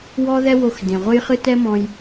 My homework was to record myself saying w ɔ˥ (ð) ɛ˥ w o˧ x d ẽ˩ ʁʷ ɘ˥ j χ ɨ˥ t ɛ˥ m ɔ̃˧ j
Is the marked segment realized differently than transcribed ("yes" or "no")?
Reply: no